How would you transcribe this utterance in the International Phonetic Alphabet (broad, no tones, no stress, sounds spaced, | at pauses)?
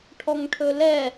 ʈʰ ɔ ŋ ʈʰ ɵ l ɛ